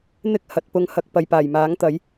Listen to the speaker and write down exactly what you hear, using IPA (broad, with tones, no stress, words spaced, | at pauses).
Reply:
n̪ɪ˥k̚ hɐ˨˥t̚pʊ˧ŋhɐ˧k̚ pɐ˨jpaː˨˩jmaː˨˥ŋ t̪ɐ˨˥j